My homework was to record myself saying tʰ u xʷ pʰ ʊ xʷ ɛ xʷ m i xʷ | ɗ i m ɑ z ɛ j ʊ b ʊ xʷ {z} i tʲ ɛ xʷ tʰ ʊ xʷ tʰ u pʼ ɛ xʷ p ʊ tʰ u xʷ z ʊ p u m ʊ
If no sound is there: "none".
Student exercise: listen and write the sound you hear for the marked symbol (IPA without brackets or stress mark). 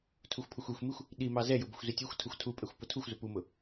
z